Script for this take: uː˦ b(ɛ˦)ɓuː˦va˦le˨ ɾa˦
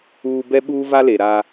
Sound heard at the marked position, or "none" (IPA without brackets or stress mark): ɛ˦